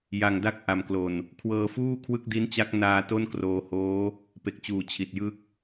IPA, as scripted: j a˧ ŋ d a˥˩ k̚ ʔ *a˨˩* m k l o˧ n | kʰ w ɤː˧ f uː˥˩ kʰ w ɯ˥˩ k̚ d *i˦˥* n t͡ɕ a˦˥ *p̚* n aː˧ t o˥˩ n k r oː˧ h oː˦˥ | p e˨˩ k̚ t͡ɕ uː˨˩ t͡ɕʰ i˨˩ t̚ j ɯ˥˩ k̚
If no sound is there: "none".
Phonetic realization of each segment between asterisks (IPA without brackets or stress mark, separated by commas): a˧, i˦˥, k̚